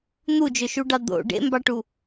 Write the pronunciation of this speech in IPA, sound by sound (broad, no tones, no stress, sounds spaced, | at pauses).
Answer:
n̪ u d͡ʒ ø ʃ u ɖ ɑ d̪ o̰ ɖ ḛ m b ɑ ʈ u